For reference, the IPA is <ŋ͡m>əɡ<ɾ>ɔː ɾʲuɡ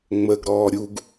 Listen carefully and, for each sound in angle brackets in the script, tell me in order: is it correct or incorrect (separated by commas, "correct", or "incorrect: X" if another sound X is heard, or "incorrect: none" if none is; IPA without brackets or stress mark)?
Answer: correct, correct